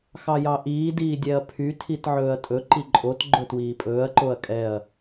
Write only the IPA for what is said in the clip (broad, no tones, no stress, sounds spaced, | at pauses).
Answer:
x ɑ j ɑ ʔ iː d iː dʲ ɛ ɐ̯ pʰ y tʰ i t ʕ ɵː ɐ̯ tʼ ɵ ǃ i ǃʼ o t ɡ͡ǃ ɵ t w iː pʼ ɵː ɐ̯ ǃ o ɐ̯ kʼ ɛ ɐ̯